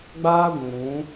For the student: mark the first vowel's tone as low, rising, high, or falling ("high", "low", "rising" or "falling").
high